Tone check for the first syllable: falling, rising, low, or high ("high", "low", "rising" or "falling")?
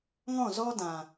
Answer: falling